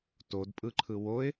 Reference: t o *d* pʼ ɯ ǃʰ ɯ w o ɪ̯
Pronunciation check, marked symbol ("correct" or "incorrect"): correct